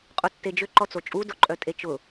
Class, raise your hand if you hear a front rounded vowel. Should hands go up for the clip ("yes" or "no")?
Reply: yes